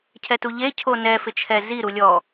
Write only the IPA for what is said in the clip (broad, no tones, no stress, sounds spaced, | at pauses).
cʰ ɛ t u ʎ e cʰ o n ɛ f ɪ t͡ʃʰ ɛ z i ɾ u lʲ ɔ